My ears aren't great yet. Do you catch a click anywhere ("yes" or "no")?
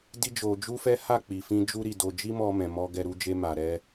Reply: no